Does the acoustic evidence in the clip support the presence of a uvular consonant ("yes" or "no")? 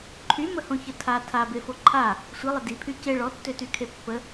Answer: no